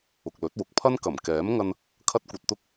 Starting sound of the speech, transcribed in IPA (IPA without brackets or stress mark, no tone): ʊ